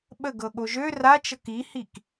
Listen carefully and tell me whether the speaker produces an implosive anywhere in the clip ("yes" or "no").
yes